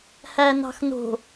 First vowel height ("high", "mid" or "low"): low